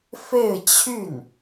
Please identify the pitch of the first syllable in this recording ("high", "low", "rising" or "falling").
falling